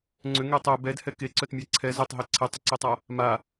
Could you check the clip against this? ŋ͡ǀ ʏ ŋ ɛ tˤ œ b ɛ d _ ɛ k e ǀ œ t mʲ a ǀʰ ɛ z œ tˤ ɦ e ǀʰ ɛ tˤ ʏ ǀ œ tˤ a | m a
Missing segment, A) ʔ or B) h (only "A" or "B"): B